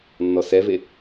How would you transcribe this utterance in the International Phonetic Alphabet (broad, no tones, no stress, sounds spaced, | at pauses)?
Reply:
nː ɔ s ɛ v e